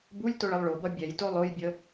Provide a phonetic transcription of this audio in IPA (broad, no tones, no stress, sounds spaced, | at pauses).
b u lʲ t o ɭ ə lˠ ɭ o b ʌ bʲ ɛ j t o lˠ o j bʲ ə